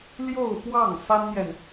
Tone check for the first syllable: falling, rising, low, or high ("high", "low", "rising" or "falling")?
falling